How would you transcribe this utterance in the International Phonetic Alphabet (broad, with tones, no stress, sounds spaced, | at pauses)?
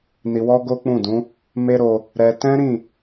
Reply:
n i˧ w ɔ˦ ɡ o˦ k͡p ũ˦˨ d ũ˨˦ | m e˦ ɾ o˧ | ɾ ɛ˧ t ɛ̃˦ ɾ ĩ˦˨